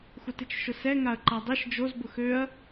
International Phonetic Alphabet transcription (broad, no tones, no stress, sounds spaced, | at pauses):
xʷ ə t ɪ t͡ʃ ʃ ʊ s ɛ ŋ a ɐ̯ ǃ a dˤ e ʃ d͡ʒ o z b ʊ x ø ɐ̯